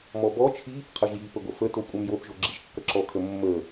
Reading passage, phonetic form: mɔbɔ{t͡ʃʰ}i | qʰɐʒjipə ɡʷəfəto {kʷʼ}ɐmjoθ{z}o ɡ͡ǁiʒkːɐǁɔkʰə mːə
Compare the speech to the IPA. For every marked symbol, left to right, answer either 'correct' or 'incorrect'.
correct, correct, incorrect

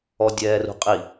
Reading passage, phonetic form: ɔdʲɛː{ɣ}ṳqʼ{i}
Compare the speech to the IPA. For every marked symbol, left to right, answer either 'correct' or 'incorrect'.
incorrect, correct

